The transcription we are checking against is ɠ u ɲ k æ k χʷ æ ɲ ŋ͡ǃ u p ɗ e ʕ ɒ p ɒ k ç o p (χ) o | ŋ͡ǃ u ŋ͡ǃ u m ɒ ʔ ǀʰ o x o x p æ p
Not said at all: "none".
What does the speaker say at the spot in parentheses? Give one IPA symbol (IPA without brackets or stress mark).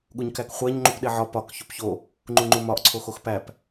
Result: ç